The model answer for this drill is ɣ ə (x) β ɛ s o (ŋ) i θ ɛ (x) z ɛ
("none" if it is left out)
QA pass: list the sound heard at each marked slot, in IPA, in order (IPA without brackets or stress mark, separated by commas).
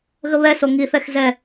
none, ŋ, x